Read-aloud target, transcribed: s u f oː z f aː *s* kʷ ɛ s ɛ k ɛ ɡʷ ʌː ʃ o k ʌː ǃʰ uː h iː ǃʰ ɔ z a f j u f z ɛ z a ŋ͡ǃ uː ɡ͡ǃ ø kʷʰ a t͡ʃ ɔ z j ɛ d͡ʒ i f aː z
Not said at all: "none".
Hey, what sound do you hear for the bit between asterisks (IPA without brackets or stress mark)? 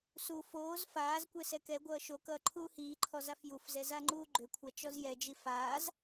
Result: z